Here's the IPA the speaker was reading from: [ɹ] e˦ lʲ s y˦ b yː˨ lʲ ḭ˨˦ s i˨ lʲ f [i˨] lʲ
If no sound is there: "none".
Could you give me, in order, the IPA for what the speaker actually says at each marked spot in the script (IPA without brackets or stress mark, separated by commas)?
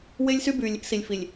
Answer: w, i˨